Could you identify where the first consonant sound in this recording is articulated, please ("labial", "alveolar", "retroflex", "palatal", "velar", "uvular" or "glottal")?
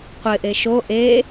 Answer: uvular